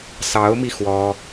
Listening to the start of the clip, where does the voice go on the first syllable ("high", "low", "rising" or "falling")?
rising